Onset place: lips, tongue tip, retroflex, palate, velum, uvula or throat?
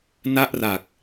tongue tip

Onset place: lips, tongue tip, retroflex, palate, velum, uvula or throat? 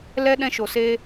tongue tip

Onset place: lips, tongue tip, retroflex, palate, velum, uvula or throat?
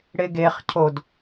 retroflex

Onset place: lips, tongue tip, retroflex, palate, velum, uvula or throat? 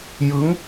palate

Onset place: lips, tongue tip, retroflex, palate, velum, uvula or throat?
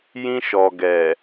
palate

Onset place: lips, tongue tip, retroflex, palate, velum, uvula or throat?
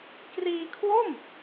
velum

